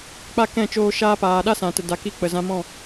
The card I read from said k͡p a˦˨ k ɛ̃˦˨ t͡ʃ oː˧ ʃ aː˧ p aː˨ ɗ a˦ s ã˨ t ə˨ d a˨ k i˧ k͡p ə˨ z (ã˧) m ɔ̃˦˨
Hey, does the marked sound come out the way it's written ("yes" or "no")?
yes